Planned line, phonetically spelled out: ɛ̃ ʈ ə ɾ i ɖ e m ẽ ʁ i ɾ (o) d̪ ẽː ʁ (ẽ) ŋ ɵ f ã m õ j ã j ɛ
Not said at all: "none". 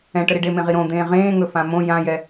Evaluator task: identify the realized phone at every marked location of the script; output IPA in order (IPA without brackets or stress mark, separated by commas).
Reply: õ, ẽː